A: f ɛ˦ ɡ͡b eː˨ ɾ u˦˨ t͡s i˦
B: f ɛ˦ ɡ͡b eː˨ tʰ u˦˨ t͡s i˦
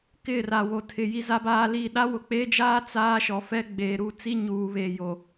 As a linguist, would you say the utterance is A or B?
A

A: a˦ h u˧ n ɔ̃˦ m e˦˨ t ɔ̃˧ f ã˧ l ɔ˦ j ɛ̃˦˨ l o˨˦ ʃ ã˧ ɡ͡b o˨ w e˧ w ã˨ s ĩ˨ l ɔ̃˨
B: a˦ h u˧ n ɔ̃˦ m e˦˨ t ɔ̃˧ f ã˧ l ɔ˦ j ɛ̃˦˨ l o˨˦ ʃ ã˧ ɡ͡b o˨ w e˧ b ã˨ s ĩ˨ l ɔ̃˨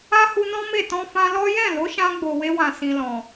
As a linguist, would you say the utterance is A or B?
A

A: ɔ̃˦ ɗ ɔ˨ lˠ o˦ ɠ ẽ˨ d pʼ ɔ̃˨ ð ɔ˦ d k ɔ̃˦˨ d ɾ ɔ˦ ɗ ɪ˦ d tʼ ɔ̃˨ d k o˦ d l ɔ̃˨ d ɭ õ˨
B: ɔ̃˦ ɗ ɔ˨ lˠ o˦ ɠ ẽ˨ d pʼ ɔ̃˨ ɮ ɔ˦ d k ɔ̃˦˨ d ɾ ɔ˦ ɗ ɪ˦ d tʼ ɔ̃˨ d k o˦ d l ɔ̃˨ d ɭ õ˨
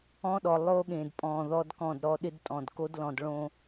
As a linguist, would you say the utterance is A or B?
A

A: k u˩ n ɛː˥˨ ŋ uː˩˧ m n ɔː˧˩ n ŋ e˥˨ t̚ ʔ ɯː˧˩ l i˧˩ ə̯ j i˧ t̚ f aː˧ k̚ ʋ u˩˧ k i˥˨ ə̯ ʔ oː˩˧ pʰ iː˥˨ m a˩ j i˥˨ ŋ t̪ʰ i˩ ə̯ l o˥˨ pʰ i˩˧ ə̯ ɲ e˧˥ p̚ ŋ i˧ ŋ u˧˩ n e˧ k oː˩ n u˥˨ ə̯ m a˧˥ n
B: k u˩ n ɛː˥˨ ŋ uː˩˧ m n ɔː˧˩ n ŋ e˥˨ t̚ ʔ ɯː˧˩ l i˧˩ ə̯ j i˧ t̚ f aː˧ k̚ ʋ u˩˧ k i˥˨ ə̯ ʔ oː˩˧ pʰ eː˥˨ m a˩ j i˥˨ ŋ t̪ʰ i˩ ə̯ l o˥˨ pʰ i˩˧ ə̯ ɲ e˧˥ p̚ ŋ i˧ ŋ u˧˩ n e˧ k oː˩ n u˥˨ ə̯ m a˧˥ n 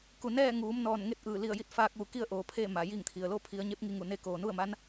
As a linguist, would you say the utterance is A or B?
B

